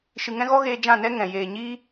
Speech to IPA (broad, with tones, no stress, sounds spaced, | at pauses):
ʃ ɨ˨ ŋ ɛ̃˦ ɣ ɔ˦ ɣ eː˧ d͡ʒ ã˦˨ n ɛ˦ ŋ ɛ̃˨ j eː˨ ɲ iː˦